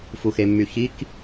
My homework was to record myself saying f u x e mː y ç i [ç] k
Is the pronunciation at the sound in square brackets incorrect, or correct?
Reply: incorrect